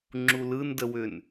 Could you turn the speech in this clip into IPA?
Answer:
ŋ͡ǁulɯndəwʏn

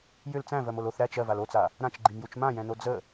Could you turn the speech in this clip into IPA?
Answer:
jʏl t͡sæ̃vɜmol oθ ɾæt͡ʃ ɜval ot͡sa | ɾãt͡ʃɡ͡ǃimjut͡ʃ mãjɛ̃no d͡zə

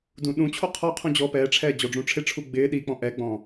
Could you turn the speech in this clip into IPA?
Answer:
dũːɗũt͡ɕʰo qʰɔ qʰũd͡ʑɔːpɛːʈ͡ʂʰɛː d͡ʑɔɖ͡ʐũʈ͡ʂʰɪʈ͡ʂʰu ɡ͡bɪː ɗik͡pɔ̃ ʔɛɡ͡bɔ̃

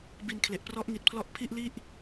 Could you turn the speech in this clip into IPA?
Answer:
bi˧nkʰle˨˩ʔ prɔ˦˥ʔŋi˨˩t̚pʰlɔ˦˥ʔ pʰi˥˩ʔli˥˩ʔ

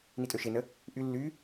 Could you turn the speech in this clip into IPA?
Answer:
nitʼøʃenə | ʔy lːy

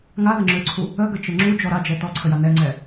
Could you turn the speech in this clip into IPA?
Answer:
ŋaðə ŋ͡ǁøǀʰu | əɡət͡ʃə ŋ͡ǁud͡ʒɔ ɾad͡ʒɛ tɔǀʰəja nɛŋ͡ǀɛ

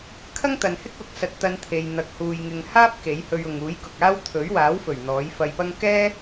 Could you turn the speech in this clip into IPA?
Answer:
kʰɐ˥ŋt̪ɐ˨nhɪ˥k̚wʊ˨k̚ sɐ˧t̚t̪ɐ˧nt̪ʰe˨j n̪ɐ˨˥k̚ huː˨jŋɪ˨ŋ haː˥p̚ ke˨˥jhɵ˧ɥʊ˨ŋ uː˨˥jkʊ˨k̚aː˥w t̪ʰɵ˨˥ɥwaː˨˥wfɵ˨˩ɥ n̪ɔː˨˥j fɐ˧jpɐ˥ŋ kɛː˥

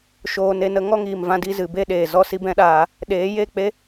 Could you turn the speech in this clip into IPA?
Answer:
ʃoː˧ne˧nə˦ ŋɔ˦ŋiː˨mvã˧di˦˨ zɨ˨be˦˨ɗeː˨ zɔ˦si˦bɛ̃˦ɗaː˧ | ɗeː˨˦je˦˨k͡pe˦

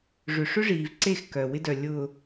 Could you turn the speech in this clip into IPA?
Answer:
ʐʏ˨ʂʏ˦ʐiː˨vǀe˦˨x kœ˨wɪ˦dœ˨ lʲʊː˨

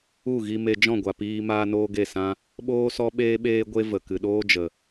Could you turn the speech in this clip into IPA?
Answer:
u˦˨ɣi˧me˧ d͡ʒɔ̃˦˨ɡʷa˨ piː˧ maː˦noː˦ɡe˦˨sã˦ | ɓoː˦sɔ˦ɓeː˦ɓeː˦ ɡʷe˦və˨ kɨ˨ɗoː˦d͡ʒə˨

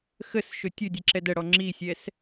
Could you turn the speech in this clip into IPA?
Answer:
xəsʃɵ tʲɵdʲɛǁɛd əɽɔ ŋ͡ǁisʲɛs

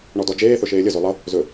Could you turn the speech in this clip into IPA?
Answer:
ɳɔdɔd͡ʒeː θɵʃeːlʲəzo lˠʌ | zɵ

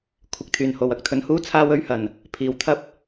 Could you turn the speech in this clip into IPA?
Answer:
kʷʰɪ˨˥k̚t̪ʰyː˨˩nho˨w ɐ˨˥k̚t̪ʰɵ˨˥nhuː˥ t͡sʰaː˥wɵ˥ɥhɐ˨˩n | pʰiː˨w t̪ʰɐ˥p̚

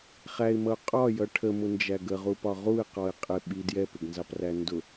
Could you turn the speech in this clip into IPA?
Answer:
χæɪ̯mʌʊ̯ qʼɒjʌ ʈʰəmʊnd͡ʒæɡ əʁupɒ ʁuɪ̯qɔɪ̯ qʼɪ ɓi djɛpɪɡnzɑpræ ndʊ

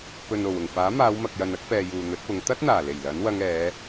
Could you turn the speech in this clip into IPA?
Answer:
pɵ˨no˨˩w ʊ˨˩ŋfaː˨˥maː˨˧wmɐ˨k̚ jɐ˨nɐ˨˥k̚pɛː˨ juː˨n̪ɵ˨˥t̚pʊ˨˧ŋ t̪ɐ˥t̚n̪aː˨˩le˨˩j lɐ˨˥nwɐ˧ŋ ɛː˨˧

